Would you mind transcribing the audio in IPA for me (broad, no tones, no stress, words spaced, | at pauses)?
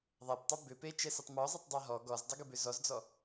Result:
ðˤæptˤɛ bʏ pet͡ʃɛsɘtˤ mɔzˤetˤdˤa ɦɔ ɡɔzdˤɘɡɘbʏ zɔzd͡zɔ